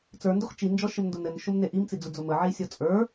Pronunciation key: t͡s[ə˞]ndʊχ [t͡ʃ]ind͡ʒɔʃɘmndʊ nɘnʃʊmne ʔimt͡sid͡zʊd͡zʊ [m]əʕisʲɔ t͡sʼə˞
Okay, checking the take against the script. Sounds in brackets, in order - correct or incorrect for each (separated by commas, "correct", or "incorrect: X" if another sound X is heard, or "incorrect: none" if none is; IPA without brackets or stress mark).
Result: correct, correct, correct